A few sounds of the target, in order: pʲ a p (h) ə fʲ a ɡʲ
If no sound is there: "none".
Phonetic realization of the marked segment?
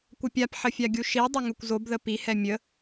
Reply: ħ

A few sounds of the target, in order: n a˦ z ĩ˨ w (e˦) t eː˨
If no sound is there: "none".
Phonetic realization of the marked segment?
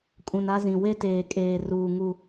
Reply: e˦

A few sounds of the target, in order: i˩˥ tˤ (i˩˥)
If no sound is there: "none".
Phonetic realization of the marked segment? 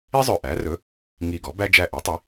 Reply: i˩˥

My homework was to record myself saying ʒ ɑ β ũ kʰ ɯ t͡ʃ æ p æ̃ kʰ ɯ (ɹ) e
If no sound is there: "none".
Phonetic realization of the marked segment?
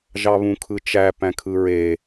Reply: ɹ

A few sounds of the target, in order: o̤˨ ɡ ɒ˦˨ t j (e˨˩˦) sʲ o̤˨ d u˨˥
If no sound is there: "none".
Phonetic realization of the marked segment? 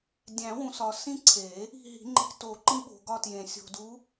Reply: ẽ˨˩˦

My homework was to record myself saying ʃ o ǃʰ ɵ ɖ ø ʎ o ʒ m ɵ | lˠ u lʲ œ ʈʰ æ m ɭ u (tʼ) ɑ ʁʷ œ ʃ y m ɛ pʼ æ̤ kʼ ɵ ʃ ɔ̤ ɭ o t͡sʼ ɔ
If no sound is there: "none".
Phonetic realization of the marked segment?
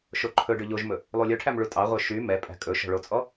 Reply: tʼ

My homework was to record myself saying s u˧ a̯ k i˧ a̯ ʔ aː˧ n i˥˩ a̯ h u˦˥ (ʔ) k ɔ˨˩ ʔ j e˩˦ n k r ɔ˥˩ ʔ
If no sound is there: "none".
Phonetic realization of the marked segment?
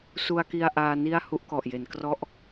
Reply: ʔ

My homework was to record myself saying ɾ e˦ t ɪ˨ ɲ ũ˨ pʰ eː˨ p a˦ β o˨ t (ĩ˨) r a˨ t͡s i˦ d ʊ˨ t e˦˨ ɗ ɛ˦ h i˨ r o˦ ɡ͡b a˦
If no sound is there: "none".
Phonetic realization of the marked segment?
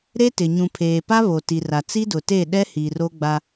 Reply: i˨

